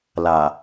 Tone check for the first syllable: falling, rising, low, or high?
low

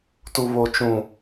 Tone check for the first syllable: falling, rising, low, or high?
high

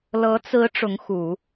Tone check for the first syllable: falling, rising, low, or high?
rising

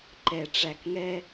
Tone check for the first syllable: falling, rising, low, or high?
low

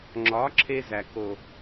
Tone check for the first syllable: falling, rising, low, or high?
rising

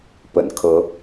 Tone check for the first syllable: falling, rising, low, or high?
low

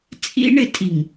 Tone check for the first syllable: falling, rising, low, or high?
high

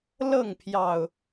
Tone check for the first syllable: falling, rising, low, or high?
falling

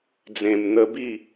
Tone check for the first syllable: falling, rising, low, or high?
low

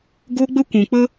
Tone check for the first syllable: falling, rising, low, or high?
high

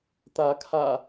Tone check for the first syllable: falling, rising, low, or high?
rising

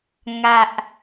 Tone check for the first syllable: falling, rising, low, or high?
low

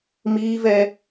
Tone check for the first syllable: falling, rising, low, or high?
high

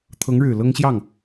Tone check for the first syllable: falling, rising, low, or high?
rising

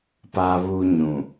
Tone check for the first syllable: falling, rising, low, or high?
high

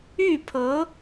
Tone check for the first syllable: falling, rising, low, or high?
falling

